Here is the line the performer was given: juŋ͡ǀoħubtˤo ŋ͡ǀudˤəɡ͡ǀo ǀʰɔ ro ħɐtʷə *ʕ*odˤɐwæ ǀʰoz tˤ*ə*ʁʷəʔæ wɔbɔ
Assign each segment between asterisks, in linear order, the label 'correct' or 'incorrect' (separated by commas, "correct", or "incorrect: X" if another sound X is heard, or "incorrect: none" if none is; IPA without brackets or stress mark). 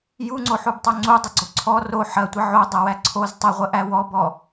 correct, correct